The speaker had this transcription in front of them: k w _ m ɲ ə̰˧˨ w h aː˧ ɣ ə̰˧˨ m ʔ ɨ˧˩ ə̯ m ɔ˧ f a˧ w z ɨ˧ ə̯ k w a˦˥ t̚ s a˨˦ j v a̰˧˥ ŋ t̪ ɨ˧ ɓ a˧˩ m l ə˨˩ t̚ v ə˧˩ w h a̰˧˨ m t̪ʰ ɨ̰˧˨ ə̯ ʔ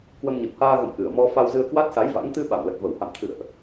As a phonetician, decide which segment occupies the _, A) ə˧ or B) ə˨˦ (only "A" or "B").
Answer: A